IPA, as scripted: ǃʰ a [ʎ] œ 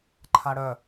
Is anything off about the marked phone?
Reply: yes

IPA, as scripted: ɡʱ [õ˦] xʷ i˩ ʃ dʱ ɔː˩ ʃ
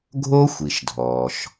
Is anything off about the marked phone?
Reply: yes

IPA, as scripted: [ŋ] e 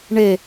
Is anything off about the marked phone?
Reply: yes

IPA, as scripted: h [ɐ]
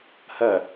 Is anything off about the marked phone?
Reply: no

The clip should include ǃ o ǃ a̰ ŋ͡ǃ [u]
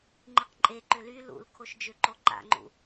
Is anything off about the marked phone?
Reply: yes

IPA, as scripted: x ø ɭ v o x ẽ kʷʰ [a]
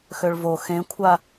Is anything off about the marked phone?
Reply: no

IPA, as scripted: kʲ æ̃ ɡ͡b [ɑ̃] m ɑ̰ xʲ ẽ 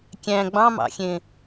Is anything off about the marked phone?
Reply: no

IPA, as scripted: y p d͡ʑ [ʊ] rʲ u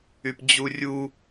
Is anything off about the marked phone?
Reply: yes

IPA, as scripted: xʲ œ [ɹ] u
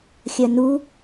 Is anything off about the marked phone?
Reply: yes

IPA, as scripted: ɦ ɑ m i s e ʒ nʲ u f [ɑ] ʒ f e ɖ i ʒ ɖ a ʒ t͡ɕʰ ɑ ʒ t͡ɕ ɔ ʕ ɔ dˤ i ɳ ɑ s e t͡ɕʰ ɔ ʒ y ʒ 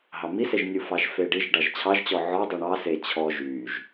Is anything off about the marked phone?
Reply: no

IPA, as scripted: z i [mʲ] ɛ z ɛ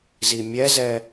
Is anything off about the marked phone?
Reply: no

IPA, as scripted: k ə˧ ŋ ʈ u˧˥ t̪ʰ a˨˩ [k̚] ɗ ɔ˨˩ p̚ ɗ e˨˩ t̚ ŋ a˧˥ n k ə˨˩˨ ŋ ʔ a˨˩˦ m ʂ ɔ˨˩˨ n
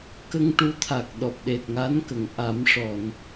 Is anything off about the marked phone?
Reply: no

